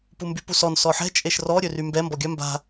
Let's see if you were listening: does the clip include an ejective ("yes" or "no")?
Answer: yes